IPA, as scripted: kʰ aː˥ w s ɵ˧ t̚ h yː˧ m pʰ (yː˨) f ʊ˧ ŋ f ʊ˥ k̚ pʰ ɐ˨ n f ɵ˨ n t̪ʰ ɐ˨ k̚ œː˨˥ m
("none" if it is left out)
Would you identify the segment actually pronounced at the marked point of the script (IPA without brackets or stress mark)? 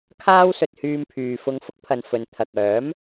yː˨